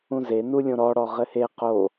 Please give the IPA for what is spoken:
ũ z e n u lʲ õ ɾ ɔ ɽ ɔ ʁ ɘ h e q o

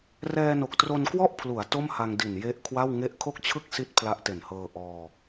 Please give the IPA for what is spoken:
r ɛː˧ n o˨˩ k̚ t r o˧ n k w ɔ˥˩ ʔ pʰ l u˩˦ a̯ t o˥˩ m h a˧ ŋ d i˨˩ n j e˦˥ ʔ kʰ w a˥˩ w ŋ e˥˩ ʔ kʰ o˥˩ k̚ t͡ɕʰ ɯ˥˩ k̚ s i˦˥ t̚ pʰ l a˦˥ ʔ t e˨˩ n h ɤː˧ ʔ ɔː˧

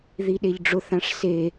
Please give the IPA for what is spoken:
ð i ɗ e ʎ ɖ͡ʐ ʊ θ ã ʂ s e

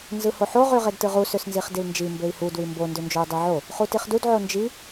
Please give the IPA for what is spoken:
n z ɯ h o ħ o ʁ y ʁ e d t ɯ ʁ u s ø s n z i χ d i l n d͡ʒ i m b ø i̯ h u d w i m b o n d ø n d͡ʒ o u̯ dˤ i ʕ o | χ u t i χ d u d ʕ o n d͡ʒ i

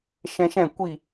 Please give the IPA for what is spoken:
ʃ ɛ̃˧ ʃ ɛ̃˦˨ kʷ i˦˨

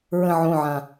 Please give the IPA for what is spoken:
ɹ ə̃ ʕ õ ʕ ã

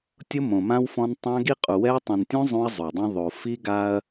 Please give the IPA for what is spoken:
tʲ ʊ˦ m õ˨ m ã˦ w f ɔ̃˦ n tˤ ã˦ ɡ i˦ qʼ u˨ w ɛ˦ ɐ̯ tˤ ĩ˨ n tʲ ũ˦ zˤ ũ˦ ɐ̯ zˤ o˨ dˤ ũ˦ ðˤ o˨ f i˦ ɡ a˦ ɐ̯

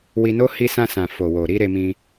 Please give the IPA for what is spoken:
w i˧ n o˦ h i˧ s ã˧ s ã˨ f o˨ w o˨ ɾ i˧ ɾ e˧ m ĩ˧

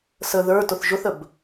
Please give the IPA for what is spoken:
s ə ð ə˞ t ʊ θ ʒ ʊ θ ə b

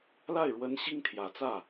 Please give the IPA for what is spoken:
l a˥˩ ɪ̯ ɻ w ə˧˥ n ɕ i˥ ŋ t̪ʰ j ä˨˩ t͡s ä˥˩

